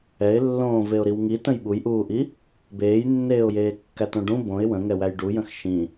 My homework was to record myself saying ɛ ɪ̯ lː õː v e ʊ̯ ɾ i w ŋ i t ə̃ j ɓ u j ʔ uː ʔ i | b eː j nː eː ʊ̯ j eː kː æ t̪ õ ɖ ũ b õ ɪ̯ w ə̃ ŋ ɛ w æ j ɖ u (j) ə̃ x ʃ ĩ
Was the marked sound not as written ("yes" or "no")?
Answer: no